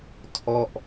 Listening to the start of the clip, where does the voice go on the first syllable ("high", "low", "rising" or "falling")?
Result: falling